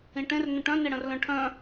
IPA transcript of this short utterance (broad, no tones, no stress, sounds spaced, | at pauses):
ĩ ʈ ẽ r n ə̃ ʈ œ̃ n e ɽ ə̃ r l œ̃ ʈʰ œ̃